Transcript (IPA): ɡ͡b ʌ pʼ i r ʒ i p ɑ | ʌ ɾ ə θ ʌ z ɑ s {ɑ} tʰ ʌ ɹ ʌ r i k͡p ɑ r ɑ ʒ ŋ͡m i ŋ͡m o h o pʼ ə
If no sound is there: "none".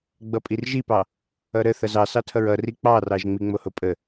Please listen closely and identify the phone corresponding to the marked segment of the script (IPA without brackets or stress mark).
ɑ